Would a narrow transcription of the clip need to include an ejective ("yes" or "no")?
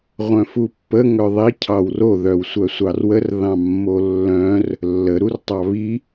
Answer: no